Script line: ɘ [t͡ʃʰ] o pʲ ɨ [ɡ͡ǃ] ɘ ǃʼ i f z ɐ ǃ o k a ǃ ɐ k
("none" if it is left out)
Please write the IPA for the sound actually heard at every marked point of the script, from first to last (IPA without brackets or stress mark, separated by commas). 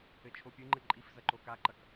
t͡ʃʰ, ŋ͡ǃ